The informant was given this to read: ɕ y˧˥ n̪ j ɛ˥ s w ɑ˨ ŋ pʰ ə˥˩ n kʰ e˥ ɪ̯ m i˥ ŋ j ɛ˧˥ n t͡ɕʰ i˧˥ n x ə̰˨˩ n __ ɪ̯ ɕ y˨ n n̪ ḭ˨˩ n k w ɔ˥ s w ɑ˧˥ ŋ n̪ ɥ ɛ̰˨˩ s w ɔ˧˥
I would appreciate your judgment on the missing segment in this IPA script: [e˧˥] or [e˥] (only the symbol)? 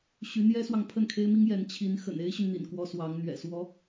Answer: e˥